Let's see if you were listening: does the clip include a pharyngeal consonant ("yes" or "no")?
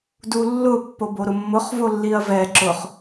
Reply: no